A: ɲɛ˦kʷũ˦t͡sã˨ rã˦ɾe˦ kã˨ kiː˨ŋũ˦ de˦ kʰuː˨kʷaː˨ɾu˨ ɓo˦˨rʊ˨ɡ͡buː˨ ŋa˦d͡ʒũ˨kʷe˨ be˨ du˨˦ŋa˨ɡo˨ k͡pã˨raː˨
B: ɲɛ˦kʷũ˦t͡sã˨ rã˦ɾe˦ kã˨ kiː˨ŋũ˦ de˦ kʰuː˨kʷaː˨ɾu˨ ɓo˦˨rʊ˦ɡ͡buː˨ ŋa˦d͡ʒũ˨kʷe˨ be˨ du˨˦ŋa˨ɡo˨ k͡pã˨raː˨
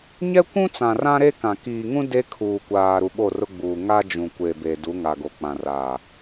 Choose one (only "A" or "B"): B